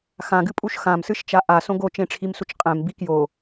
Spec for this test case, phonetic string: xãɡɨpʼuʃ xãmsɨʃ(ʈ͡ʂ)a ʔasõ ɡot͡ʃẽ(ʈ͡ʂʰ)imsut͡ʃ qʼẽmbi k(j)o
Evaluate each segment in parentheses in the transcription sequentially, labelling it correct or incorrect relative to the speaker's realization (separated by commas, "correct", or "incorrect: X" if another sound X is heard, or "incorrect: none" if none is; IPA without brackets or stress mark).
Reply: incorrect: t͡ʃ, correct, correct